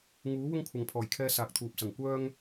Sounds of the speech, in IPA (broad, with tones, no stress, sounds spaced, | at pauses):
ŋ uː˨˥ w ʊ˥ ŋ kʷʰ ɐ˨ ŋ pʰ ɔː˨˩ j kʰ ɛː˧ s aː˨ k̚ t̪ʰ uː˨ p̚ s ɐ˨˩ ŋ kʷ œː˥ ŋ